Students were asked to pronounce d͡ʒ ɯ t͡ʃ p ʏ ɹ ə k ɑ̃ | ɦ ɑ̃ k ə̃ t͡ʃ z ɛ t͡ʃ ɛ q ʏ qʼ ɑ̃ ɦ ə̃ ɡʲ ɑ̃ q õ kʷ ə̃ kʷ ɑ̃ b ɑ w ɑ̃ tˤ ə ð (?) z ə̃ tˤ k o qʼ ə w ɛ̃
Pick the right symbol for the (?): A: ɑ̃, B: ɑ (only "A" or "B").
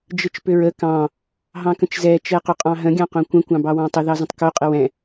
B